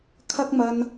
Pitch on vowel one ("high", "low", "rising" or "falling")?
high